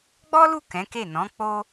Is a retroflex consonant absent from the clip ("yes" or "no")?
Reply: yes